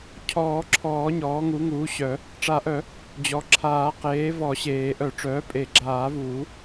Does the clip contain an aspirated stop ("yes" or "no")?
yes